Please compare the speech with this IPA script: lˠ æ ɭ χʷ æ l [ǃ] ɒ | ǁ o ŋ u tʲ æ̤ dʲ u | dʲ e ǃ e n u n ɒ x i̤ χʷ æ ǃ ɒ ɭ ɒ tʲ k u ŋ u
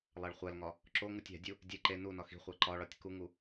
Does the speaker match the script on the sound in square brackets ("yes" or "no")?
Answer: no